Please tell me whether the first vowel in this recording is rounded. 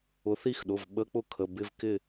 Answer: yes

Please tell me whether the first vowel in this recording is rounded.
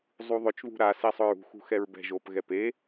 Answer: yes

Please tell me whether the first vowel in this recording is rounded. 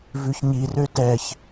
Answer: yes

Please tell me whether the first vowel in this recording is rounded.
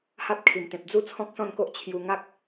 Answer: no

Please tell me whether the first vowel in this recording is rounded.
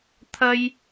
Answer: no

